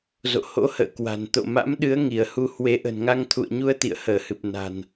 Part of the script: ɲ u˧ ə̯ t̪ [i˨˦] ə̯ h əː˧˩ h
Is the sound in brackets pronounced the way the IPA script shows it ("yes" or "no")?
no